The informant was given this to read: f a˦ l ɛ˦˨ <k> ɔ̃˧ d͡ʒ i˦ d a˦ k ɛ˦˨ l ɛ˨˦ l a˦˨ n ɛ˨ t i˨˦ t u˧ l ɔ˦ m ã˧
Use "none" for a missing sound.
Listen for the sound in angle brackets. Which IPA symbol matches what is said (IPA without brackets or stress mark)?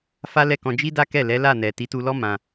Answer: k